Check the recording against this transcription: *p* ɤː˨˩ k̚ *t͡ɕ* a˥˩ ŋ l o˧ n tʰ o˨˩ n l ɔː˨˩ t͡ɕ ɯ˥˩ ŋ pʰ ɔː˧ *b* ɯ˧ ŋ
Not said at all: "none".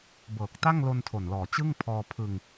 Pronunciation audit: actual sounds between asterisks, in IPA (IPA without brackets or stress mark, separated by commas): b, t, pʰ